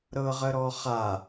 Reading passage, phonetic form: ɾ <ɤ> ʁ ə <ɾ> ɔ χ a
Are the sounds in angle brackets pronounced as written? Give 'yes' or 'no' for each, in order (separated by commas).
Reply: yes, yes